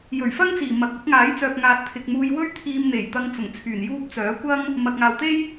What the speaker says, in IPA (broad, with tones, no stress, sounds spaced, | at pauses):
j ɵ˨˩ ɥ f ɐ˥ ŋ t͡s iː˨˩ m ɐ˨ k̚ ʊ˨˥ k̚ ŋ aː˨˥ j t͡s œː˨ p̚ ŋ aː˨ t̚ t̪ʰ ɪ˨ k̚ m uː˧ j w ɵ˥ ɥ t̪ʰ iː˧ m n̪ e˨˩ j t̪ ɐ˧ ŋ t͡s ʊ˨˩ ŋ t͡sʰ yː˨˩ n j uː˥ p̚ t͡s œː˨˥ kʷ ɐ˥ ŋ | m ɐ˨ k̚ ŋ aː˨ w t̪ e˥ j